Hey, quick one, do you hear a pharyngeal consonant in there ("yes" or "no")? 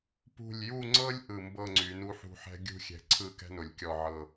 yes